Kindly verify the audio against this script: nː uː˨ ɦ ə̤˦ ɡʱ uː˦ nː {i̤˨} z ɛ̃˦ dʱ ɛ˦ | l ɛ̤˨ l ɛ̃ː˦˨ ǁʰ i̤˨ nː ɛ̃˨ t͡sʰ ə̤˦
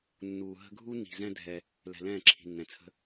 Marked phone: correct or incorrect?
correct